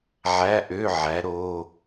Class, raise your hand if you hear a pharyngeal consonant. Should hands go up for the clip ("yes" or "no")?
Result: yes